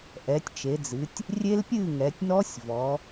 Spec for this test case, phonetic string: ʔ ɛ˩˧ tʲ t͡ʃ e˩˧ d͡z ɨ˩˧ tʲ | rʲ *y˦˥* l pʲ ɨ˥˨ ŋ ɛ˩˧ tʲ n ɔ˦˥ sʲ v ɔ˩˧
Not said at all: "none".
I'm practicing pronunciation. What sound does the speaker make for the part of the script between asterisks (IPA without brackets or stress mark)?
e˦˥